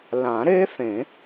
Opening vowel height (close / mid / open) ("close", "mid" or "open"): open